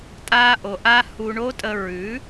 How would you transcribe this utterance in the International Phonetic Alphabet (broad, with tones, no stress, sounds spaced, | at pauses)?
tʼ a˧ ʔ o˨ ʔ a˧ h u˧ ɳ o˦ tʼ ə˧ ɹ ʉ˨˦